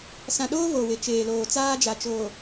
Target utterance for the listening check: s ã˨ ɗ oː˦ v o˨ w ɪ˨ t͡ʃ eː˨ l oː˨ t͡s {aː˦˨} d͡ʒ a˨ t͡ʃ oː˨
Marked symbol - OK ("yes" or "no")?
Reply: no